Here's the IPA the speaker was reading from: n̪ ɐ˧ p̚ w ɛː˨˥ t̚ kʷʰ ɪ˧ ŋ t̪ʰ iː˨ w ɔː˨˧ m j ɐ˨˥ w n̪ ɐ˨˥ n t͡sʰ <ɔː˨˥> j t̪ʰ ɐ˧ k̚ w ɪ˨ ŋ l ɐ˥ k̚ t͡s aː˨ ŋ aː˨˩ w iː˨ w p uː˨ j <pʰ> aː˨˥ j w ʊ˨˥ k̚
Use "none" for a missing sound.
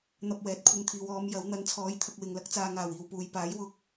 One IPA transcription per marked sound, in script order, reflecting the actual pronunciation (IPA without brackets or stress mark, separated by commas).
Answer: ɔː˨˥, p